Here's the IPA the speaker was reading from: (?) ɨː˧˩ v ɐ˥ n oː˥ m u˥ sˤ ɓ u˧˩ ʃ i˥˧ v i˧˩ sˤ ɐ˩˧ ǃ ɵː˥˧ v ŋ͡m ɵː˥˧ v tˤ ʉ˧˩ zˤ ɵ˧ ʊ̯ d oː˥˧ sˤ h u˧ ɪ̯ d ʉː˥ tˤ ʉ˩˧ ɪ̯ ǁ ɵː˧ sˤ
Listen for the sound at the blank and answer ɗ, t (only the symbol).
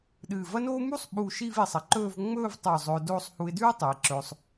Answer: ɗ